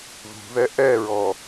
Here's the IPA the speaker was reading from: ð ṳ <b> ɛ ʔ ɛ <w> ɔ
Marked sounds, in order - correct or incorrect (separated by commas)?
incorrect, incorrect